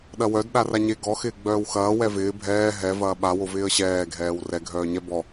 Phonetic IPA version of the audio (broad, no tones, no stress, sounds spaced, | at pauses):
ɗ ɐ w œ d ɗ a r a ɲ e ɡ ɔ x ɪː ɡ͡b œː w x ɐː w ɛ v ɪː bʱ ɛː ɦ ɛ v ɐː ɓ a w o v ɪː ə̯ ɕ ɛː ɡʱ ɛː w r ɛ ɡʱ œː ɲ ɛ b ɔ